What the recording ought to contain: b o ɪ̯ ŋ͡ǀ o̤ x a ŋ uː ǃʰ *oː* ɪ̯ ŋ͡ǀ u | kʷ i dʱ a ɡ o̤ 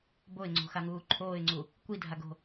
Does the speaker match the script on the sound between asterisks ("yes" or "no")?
yes